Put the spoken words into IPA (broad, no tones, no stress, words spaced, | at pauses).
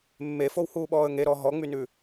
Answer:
mːefowhuːɓɔːə̯ ŋeɾɔ ɦɔŋ͡mynʉ